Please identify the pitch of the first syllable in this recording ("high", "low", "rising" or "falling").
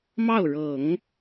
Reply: falling